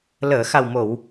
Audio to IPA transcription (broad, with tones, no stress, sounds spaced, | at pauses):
l əː˨˩˨ x a˨˩ w m o˨˩˨ w